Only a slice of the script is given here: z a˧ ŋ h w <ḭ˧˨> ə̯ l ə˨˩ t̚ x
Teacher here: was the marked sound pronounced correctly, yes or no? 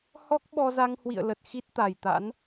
yes